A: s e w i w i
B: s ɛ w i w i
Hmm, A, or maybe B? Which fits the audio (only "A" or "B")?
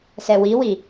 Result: B